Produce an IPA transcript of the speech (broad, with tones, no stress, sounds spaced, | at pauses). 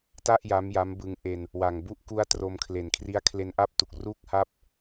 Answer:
t a˥˩ ʔ j a˦˥ m j a˦˥ m b ɯ˧ ŋ ʔ e˧ n | w a˨˩ ŋ b u˦˥ ʔ k u˦˥ a̯ t r o˧ m kʰ l e˨˩ n kʰ r i˦˥ a̯ kʰ l e˧ n ʔ a˥˩ p̚ t u˨˩ k̚ r uː˥˩ k̚ h a˥˩ p̚